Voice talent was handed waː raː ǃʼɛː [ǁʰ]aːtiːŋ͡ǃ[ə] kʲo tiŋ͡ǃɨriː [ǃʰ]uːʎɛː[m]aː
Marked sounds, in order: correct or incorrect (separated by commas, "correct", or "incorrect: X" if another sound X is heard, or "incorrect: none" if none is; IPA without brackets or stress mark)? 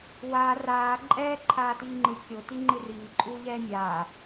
incorrect: ǃʰ, incorrect: ɨ, incorrect: ǃʼ, incorrect: mʲ